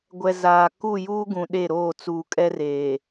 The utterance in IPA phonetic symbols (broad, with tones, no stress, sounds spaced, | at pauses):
ɡʷ ɛ˨ z aː˨ k u˦˨ j uː˦ ɡ ũ˨ ɗ e˦˨ ɾ oː˦˨ t͡s uː˨ kʼ ɛ˦ r eː˨